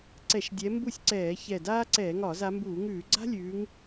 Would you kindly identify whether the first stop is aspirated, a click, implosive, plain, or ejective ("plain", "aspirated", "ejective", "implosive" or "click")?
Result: click